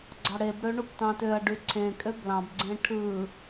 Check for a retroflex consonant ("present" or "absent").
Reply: present